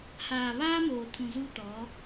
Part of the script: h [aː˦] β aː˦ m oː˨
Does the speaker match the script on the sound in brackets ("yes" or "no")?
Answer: no